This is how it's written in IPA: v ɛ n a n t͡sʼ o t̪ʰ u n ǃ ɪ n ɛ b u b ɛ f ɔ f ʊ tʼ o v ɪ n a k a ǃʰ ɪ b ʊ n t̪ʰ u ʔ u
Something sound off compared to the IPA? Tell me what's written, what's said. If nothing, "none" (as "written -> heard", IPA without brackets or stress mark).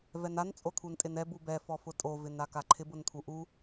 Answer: ǃ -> tʼ